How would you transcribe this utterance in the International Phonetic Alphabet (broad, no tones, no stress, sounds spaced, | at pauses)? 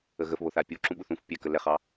ə ɣ ə f β o θ a pʲ u ǁ ũ ɓ u θ ũ f pʲ ɛ k ə l ɛ χ ɑ